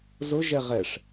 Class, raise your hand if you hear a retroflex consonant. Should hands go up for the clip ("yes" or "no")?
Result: yes